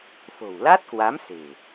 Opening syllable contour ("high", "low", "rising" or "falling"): low